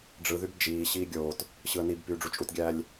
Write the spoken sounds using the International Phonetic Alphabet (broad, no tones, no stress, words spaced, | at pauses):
ɖ͡ʐɯ ðybd͡ʒiː ɕiːɡʲoːt | ɕɯə̯nib pyːɖ͡ʐut͡ʃʼutɡʲæːlʲ